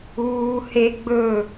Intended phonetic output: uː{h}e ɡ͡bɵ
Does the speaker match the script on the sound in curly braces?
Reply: yes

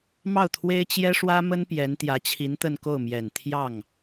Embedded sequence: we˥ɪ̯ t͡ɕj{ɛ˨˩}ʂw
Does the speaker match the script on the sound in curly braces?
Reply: no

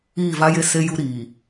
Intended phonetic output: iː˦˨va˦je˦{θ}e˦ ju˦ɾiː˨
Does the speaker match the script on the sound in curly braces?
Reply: no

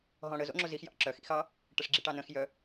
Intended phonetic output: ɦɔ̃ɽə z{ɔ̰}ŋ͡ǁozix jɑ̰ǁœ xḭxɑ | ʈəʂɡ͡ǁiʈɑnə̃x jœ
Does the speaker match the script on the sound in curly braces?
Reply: no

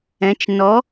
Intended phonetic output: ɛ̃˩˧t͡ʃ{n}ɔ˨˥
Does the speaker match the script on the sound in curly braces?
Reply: yes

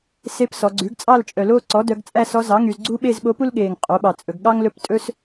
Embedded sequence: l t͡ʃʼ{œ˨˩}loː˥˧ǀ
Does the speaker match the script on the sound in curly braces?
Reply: yes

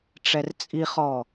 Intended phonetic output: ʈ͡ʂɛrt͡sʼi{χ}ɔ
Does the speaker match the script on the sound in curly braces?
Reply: yes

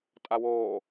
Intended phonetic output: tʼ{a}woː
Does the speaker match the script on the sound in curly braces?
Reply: yes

